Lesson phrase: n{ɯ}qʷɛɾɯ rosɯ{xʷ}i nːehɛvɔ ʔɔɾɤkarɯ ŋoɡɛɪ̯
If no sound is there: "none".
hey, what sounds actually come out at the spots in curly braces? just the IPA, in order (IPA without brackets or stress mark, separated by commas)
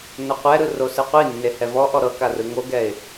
ɤ, qʷ